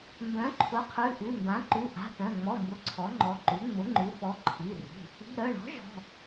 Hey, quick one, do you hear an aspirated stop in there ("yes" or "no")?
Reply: yes